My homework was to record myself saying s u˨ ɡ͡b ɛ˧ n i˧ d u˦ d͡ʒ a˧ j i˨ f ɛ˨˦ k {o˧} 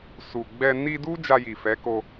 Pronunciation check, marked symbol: correct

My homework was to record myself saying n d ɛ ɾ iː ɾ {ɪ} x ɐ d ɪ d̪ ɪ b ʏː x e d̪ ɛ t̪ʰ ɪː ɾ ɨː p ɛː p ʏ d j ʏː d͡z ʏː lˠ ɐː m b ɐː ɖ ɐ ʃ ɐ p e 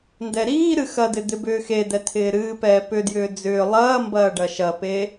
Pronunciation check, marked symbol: incorrect: ɨ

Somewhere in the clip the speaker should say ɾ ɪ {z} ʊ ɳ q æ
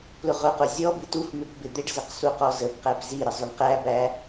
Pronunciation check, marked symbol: incorrect: zˤ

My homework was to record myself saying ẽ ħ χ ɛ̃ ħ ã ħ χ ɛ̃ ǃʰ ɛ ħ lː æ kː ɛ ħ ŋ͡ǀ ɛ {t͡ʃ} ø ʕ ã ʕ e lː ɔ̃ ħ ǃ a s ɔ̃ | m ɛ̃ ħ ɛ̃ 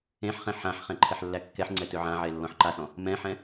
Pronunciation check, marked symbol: incorrect: t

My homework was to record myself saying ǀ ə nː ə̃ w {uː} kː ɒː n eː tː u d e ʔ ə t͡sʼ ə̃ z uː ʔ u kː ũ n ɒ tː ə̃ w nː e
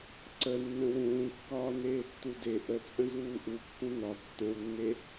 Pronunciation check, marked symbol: incorrect: ũː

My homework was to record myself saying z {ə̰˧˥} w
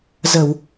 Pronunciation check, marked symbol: incorrect: ə˧˩˨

